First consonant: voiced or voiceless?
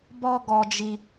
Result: voiced